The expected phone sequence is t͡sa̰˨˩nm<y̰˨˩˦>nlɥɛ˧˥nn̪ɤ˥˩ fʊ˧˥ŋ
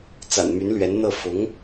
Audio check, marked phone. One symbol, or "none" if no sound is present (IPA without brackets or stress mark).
y˧˥